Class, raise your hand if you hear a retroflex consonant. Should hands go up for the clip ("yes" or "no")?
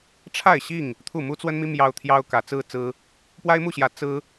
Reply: yes